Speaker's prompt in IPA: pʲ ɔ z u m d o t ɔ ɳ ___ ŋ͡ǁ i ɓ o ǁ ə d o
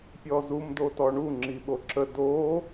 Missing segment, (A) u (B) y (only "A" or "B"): A